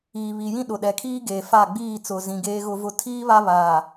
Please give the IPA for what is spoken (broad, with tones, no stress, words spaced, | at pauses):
iː˨βi˨jĩ˦ ɗʊ˨ɗɛ˨kʰiː˦ ɡeː˨fa˦˨ɡ͡biː˦˨ t͡sʊ˨zĩ˨ ɡeː˦ɣʊ˦vʊ˦ tʰiː˦ βa˦βaː˨